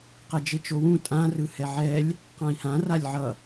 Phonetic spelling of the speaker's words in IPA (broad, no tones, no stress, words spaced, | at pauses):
qɛd͡ʒet͡ʃowũ tʼãrɯ hɛʕɛlʲ | qãi̯hã ralʲʕʌ